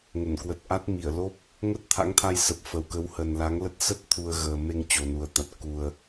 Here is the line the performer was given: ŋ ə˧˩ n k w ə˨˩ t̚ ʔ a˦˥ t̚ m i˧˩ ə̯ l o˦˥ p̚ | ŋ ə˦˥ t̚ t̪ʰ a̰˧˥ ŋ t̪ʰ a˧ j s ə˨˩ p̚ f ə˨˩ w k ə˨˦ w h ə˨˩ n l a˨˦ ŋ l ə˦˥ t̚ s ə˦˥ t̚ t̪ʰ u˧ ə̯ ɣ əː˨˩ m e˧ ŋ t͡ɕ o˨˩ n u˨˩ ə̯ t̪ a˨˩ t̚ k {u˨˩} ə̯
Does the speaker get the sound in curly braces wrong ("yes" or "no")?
no